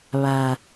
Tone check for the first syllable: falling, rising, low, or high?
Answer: low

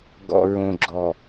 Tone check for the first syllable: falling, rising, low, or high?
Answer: low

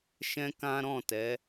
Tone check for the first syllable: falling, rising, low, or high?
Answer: high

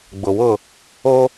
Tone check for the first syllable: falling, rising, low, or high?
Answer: low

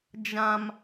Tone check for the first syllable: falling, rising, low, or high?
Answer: high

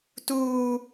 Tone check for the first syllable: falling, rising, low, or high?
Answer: high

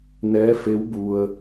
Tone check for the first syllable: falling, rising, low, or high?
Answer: rising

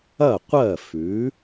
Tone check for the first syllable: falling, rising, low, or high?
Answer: falling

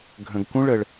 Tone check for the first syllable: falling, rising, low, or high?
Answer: low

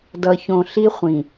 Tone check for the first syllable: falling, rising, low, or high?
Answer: low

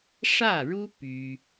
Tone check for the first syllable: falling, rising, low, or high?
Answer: falling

